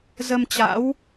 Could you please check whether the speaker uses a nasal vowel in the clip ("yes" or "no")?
no